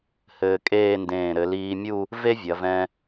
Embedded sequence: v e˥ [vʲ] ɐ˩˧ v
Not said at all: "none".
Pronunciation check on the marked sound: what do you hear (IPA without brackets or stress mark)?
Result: vʲ